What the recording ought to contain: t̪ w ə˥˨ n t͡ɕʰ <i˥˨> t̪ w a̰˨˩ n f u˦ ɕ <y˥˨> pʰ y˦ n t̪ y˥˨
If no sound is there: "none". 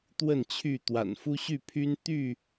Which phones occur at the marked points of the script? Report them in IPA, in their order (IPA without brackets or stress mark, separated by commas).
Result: y˥˨, y˥˨